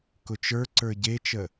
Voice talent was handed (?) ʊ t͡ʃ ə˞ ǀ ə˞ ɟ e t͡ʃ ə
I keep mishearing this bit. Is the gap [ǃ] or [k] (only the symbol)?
k